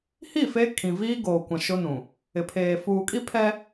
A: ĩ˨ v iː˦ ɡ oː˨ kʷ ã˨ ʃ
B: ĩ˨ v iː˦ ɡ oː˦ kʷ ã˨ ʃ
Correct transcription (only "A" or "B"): A